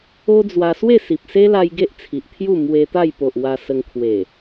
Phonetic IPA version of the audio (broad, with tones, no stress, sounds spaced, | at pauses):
o˦ d͡z w a˧ s w e˥˧ s i˨ p̚ s e˦ l a˧ j ɡ e˦ ʔ t͡sʰ i˨ ʔ t̪ʰ j u˥˧ m w e˧ t̪ a˥˧ j p o˨ ʔ w a˧ s ə˧ ŋ kʰ w e˨˩